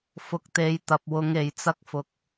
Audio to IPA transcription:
fʊ˧k̚t̪e˨˧j t̪ɐ˨p̚wʊ˨˧ŋ e˨˧jt͡sɐ˥k̚fʊ˧k̚

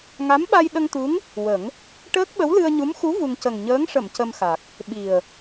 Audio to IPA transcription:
ŋa˧˥mɓa˧jɗə˧ŋt̪u˧˥ŋ | wə˨˩˦ŋ | ʈəː˦˥k̚ɓə˧˥wlɨ˧ə̯ɲu˧˥m xu˧˥ vu˧ŋ cə˨˩ŋɲəː˧˥ŋʂə˨˩˨m cə˧mxa˨˩k̚ | ɓi˨˩ə̯

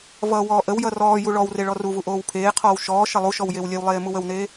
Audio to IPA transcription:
vʌːwɔːʔəwjʌ rɔːju ɭɔwre ɭɔruvu ʔoːwpʰeːqʰɔːw ʃɔː ʃʌlˠuʃɔw jewlʲewlˠeː muwəwneː

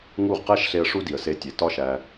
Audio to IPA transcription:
ŋu˦˨ʁqæ˦ʃɬe˧ə̯ ʂu˦di˨ə̯se˧ tʲe˨tɒ˦ʃæ˧

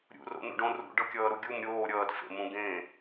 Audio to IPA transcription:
ɾʲṵro̰nṵɖõ rṵɖɤkʲʌːɾu ɡʲum ɾʲoː ɾʲʌːdfḛmũ ɡẽ

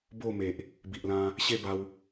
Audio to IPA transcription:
bo˥˧me˨ʔ | bi˨ʔlã˧ | ɕe˥˧ba˧w

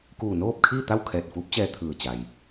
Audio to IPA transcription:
kuː˧˩noː˥˨p̚kʰiː˥˨t̪a˥˨w kʰɛː˧˩t̚fuː˧˥p̚t͡ɕɛː˧ t̪ʰɯː˧˩ t͡ɕa˩j

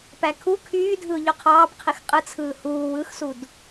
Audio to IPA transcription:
pækʰu kʰyːdʱɯʊ̯ ʎoqʰɑːp qʰixqʼɯt͡sʰɯː huː wɯxsud

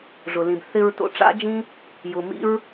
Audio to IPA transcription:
ʐʊ˨lĩ˨b θɪ˧ɹ to̰˧ʈ͡ʂa̰˦d͡ʒĩ˦ | jʊ˨ mḭ˦ɹ

